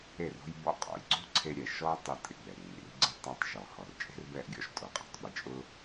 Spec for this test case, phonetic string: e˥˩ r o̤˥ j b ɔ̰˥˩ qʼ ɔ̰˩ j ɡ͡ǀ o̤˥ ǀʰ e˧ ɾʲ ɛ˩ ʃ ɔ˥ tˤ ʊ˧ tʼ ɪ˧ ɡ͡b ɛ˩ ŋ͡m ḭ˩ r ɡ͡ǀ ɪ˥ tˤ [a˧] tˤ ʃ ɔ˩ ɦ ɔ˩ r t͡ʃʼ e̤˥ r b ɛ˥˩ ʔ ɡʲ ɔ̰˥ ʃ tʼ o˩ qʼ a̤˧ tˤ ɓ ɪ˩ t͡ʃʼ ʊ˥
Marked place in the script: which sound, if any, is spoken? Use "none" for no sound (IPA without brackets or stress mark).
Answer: a˧